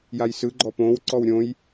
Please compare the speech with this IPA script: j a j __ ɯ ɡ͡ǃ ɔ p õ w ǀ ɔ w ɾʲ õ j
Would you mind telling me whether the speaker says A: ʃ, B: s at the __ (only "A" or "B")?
B